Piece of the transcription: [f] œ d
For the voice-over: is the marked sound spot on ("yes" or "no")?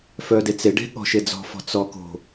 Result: yes